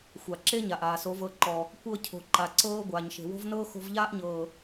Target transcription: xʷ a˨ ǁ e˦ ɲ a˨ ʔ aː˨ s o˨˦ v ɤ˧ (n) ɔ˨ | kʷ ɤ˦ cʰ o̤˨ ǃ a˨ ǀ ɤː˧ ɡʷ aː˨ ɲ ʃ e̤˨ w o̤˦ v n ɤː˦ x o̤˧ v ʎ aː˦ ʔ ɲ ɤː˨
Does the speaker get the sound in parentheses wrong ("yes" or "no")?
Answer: yes